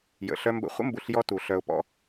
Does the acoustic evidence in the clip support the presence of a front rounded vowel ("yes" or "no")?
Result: yes